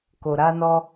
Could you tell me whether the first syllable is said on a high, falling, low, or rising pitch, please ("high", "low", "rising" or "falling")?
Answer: low